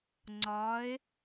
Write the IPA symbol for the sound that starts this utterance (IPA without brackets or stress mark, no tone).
ŋ͡ǀ